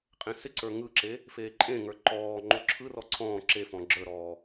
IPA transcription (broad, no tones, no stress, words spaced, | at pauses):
qʼẽsɪǀə˞ ŋɯǁe | feːǃʼẽŋə˞ ǃɔːŋ͡ǃo ǁʰɯrɔ ǀʰɔ̃ː ǁefɔ̃ ɡ͡ǁə˞ɾɔː